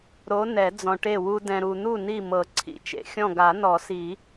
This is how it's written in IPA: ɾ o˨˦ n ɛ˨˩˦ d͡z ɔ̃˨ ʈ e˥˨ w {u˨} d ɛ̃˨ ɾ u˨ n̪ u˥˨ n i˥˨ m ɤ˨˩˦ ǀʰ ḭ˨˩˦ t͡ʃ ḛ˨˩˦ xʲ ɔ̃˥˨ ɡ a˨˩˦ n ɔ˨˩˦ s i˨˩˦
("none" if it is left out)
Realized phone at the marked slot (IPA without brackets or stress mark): u˦